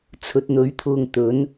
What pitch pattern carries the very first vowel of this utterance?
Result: low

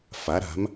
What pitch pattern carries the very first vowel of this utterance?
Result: rising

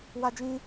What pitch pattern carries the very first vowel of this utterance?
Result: high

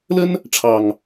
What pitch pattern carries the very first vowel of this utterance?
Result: high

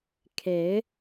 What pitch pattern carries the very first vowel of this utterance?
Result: rising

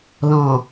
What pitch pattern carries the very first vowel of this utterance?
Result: low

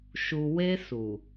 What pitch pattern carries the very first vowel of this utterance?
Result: low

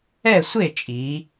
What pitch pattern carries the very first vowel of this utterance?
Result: falling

